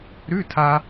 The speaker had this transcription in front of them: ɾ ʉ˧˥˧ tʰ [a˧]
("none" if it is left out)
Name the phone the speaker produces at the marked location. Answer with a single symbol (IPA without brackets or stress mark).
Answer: a˧